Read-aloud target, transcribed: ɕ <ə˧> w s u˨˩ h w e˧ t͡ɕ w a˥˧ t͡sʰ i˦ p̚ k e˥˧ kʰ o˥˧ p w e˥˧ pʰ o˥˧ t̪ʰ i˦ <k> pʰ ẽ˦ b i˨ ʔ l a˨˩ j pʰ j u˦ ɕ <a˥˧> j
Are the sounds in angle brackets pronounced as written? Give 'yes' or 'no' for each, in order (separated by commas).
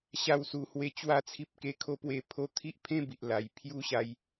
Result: no, no, no